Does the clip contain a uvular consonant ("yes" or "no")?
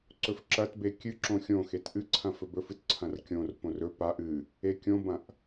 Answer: no